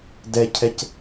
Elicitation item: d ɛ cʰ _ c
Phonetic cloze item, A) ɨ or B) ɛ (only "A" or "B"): B